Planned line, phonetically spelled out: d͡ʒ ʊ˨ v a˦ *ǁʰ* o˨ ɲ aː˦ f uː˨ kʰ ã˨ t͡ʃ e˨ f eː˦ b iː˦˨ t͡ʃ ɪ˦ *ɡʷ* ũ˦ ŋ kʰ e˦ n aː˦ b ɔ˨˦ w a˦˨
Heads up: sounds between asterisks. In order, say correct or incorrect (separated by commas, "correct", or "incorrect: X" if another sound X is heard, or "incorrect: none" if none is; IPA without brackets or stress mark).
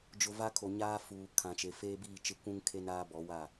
incorrect: kʰ, incorrect: kʷ